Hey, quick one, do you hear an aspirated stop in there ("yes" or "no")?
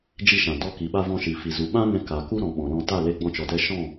no